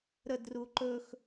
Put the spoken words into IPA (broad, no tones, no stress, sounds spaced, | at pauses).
ɾ ə d r u ǃ ɵ x